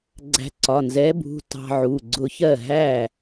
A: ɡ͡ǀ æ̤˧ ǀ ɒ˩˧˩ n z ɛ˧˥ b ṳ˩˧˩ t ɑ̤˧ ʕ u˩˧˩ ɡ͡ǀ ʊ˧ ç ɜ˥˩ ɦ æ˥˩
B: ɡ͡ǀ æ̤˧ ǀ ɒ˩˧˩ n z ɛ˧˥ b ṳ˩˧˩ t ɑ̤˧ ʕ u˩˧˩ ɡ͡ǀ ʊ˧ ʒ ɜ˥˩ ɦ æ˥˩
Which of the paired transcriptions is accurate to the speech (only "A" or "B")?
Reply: A